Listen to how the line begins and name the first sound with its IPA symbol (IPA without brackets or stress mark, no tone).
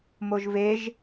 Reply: m